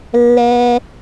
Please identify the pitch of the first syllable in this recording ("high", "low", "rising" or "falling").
low